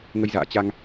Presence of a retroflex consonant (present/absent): absent